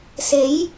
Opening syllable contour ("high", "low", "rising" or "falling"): rising